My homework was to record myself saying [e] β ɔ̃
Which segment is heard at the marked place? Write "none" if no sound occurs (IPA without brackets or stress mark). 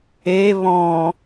e